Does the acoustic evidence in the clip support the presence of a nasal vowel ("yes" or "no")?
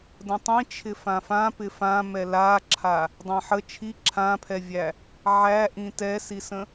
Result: yes